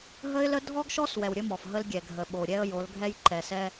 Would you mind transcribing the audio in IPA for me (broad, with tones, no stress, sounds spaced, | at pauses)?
ɦ ə˦ ɪ̯ l ə˦ dʱ ɔ˦ ɡ ʃ ɔ˦ s w ɛ˨ w ɾʲ ə˦ m ɔ˨ f ɦ ə˦ l ɡʲ ɛ˨ ɡʱ ə˨ ɓ o˨ ɾʲ ɛ˦ ə̯ j o˨˦ l ɡʱ ɛ˦ j ǃ ɛ˨ s ɛ˦